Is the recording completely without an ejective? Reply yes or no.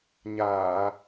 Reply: yes